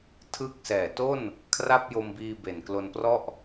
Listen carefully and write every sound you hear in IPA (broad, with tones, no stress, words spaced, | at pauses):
tʰɯ˦˥k̚sɛː˨˩ to˥˩n | kʰra˥˩p̚jo˧mbiː˧ be˨˩nklo˧nprɔ˥˩ʔ